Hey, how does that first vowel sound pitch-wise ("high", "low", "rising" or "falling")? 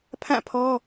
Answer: falling